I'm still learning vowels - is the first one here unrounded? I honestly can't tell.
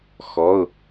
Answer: no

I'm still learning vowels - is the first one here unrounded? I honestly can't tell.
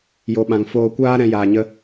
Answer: no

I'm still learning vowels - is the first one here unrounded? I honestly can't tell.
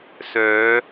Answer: no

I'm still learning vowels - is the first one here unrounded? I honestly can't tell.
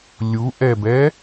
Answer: no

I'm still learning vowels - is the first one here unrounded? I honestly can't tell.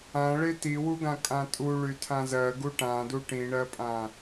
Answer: yes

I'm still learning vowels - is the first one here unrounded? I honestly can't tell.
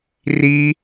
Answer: yes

